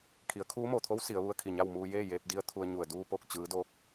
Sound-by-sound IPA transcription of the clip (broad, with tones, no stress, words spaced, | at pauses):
kʰi˩˧ə̯kʰuː˧˥mo˧˩t̪ʰo˧˥w si˩˧ə̯ʋu˧˥ə̯kʰi˧˩ɲa˥˨w muː˧jeː˥˨ jeː˧p̚di˧˥ə̯ t̪ʰu˧ə̯ɲu˧˩ə̯ duː˧po˧˩k̚ t͡ɕɯː˩˧doː˧k̚